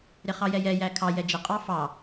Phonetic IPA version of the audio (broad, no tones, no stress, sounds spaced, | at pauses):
ɾ ɪ χ ɑ j ɛ j ɛ j æ kʰ ɑ j ɛ d͡ʒ ɪ qʼ ɑ f ɑ